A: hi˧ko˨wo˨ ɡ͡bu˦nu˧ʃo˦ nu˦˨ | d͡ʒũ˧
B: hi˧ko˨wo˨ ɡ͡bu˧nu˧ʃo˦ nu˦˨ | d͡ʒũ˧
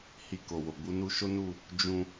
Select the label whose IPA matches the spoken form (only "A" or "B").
B